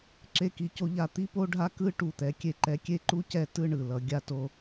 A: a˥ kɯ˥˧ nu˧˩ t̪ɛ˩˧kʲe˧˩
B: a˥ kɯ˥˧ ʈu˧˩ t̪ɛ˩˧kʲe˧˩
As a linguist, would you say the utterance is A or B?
B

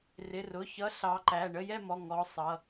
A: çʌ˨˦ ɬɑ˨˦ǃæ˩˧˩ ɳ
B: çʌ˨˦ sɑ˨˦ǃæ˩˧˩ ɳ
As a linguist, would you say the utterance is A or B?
A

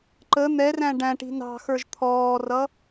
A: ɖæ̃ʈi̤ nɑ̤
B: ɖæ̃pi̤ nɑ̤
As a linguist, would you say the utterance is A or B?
A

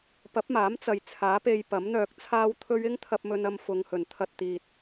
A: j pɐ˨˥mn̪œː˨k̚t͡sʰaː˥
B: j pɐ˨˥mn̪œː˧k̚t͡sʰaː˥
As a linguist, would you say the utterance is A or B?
B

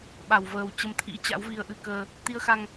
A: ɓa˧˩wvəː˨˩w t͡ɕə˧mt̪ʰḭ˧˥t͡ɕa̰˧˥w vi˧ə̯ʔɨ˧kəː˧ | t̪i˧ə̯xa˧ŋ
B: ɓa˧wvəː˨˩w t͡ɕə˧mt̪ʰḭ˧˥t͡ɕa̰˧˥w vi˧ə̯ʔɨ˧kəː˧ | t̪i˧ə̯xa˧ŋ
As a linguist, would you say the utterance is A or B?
A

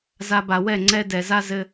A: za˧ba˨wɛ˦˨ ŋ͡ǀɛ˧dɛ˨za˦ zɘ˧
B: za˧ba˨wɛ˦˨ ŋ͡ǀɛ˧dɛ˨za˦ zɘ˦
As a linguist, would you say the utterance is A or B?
B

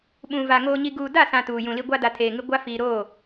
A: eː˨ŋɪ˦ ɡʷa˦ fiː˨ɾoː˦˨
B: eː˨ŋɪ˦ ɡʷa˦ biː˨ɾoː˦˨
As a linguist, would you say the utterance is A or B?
A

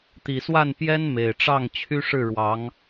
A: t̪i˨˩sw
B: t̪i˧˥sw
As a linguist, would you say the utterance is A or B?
A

